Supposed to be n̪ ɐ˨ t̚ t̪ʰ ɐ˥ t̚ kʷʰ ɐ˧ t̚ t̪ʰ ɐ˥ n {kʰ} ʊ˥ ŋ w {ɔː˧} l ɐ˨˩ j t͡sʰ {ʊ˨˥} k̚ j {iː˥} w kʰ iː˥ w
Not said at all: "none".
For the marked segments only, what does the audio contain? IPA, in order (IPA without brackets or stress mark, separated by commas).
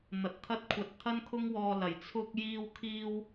kʰ, ɔː˧, ʊ˥, iː˥